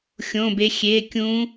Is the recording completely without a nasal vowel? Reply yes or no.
no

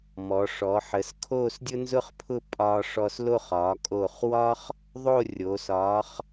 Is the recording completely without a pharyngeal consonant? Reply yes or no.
no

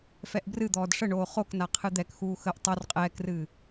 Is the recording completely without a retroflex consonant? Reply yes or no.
no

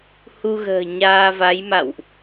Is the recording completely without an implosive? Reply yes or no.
yes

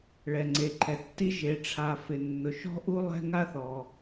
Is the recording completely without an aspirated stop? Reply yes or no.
no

